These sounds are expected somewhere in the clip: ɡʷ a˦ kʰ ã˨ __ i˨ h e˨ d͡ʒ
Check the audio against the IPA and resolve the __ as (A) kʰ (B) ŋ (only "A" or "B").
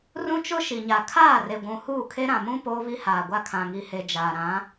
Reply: B